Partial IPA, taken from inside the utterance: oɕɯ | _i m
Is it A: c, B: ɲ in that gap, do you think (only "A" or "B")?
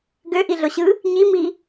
B